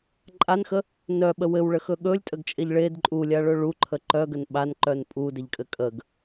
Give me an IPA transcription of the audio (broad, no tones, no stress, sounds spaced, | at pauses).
ǃʼ a n x ə | n œ ɓ ə w ɘ w ɭ ə x ɵ ɠ ɵ lʲ tʼ ə ɡ t͡ʃʼ e ʎ ɭ e d ǃʼ u lʲ a ɭ ɵ ɭ u ǃʰ ə ǃ œ ɡ ə n ɓ a n ǃ œ n pʼ u d ɘ ʎ kʼ ɘ kʼ ə ɡ